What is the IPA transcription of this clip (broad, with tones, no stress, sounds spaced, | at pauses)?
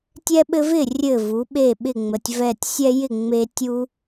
tʲ ɛ˦ ɓ ɘ˦ v ɪ˥˩ rʲ ɘ˧˩ v u˩˧ ɓ e˧˩ ɓ ɪ˥˩ ŋ͡m ə˩˧ tʲ v ɛ˧˩ tʲ sʲ ɛ˦ j ɪ˥˩ ŋ͡m e˦ tʲ u˦